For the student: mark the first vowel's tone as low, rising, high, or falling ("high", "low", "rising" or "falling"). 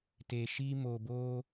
low